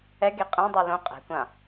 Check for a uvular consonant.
present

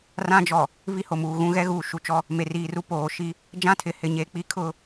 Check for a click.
absent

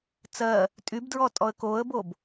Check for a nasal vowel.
absent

